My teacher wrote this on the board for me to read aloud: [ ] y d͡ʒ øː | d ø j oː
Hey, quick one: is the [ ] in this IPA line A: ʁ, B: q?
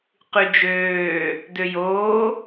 B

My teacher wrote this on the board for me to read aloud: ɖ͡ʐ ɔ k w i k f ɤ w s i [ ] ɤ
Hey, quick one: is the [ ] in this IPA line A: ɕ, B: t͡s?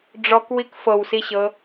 A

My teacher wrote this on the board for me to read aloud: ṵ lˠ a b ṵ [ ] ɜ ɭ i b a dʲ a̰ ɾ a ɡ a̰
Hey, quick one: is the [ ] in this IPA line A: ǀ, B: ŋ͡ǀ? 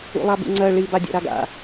B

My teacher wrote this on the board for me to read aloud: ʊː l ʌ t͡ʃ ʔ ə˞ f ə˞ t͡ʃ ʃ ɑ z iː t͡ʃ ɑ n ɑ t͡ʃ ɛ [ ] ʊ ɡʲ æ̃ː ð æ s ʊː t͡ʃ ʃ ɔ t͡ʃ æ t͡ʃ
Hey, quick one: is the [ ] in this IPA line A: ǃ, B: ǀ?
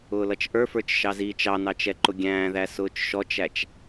A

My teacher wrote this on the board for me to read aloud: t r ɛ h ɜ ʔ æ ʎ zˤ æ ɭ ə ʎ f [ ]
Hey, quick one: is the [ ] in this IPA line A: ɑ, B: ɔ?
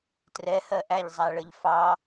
A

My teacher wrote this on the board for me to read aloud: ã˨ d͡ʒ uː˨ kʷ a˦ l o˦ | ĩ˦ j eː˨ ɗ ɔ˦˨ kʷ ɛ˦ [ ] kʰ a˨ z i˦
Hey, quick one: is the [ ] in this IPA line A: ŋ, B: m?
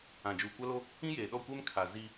B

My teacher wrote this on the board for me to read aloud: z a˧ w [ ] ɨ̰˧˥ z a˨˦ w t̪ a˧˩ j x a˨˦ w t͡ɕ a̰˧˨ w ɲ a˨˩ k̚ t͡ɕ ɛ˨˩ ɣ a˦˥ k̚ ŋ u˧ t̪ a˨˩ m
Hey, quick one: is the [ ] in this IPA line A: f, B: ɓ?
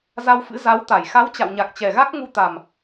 A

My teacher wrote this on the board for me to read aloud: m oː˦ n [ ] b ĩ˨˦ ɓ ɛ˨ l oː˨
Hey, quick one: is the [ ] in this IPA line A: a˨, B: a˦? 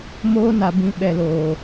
A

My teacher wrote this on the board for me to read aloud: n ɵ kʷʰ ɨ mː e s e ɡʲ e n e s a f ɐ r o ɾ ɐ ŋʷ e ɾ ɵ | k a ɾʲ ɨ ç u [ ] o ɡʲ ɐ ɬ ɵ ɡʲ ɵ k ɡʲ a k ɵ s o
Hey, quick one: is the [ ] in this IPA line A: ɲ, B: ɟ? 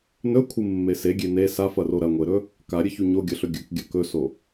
A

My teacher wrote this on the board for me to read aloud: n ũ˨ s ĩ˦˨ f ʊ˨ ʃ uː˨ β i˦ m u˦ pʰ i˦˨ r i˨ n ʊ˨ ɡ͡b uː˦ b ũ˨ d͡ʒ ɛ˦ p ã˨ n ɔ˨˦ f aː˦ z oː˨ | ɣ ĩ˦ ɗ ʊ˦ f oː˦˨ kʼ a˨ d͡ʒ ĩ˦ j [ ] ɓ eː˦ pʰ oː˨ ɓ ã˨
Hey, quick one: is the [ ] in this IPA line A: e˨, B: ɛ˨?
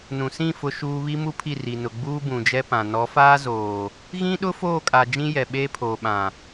B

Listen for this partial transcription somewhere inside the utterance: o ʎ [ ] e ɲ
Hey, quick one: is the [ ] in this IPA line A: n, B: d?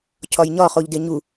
B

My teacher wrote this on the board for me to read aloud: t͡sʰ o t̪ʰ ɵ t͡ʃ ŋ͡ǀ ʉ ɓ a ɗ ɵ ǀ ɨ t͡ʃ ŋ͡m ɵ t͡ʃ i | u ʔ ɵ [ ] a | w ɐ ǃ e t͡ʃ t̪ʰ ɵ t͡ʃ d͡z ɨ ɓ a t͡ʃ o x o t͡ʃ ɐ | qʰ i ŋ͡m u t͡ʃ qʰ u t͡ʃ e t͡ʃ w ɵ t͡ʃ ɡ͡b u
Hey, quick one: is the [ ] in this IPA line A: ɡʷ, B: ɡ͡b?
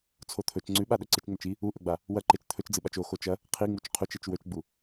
B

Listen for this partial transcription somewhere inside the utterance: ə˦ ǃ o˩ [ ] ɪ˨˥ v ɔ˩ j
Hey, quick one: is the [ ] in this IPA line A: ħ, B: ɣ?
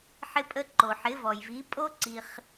A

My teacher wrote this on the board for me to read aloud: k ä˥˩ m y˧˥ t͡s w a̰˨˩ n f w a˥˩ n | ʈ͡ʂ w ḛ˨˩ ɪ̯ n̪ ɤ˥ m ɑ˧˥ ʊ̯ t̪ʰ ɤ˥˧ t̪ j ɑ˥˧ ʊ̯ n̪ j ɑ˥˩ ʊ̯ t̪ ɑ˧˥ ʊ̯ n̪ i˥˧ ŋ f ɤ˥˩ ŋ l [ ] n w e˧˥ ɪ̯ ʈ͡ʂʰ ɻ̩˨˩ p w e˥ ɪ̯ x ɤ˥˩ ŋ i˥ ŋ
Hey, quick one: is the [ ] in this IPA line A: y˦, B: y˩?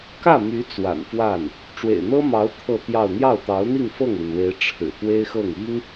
B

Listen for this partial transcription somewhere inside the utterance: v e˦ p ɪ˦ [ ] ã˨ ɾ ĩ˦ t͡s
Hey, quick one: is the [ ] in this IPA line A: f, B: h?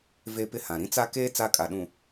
B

